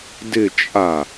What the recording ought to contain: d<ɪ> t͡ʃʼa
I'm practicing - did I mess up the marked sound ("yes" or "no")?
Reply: no